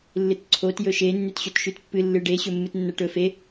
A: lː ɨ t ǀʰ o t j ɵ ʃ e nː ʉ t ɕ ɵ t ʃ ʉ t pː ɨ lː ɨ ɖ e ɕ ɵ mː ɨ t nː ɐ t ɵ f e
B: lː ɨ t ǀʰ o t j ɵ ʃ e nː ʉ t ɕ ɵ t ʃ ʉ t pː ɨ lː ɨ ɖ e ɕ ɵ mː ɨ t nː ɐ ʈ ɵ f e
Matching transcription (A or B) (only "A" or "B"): B